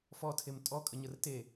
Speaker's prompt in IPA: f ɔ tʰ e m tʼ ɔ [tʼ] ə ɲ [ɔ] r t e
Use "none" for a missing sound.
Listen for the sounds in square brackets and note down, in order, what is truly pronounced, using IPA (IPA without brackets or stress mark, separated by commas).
kʼ, ə